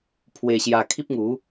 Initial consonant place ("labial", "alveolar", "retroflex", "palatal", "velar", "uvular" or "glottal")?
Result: labial